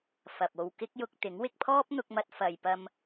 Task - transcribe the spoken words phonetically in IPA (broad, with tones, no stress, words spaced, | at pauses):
fɐ˨p̚o˧w kɪ˥k̚jʊ˧k̚t̪ɪ˨˥ŋ wɪ˧k̚pʰɔː˥p̚n̪ʊ˧k̚mɐ˧t̚ fɐ˨jpɐ˧m